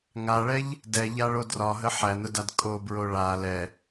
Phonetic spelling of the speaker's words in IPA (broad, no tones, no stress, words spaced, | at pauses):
ŋaɭɛʎ | dɛʎaɭo drɒɦə ħænʊdad kʼobɹo ɭa lɛ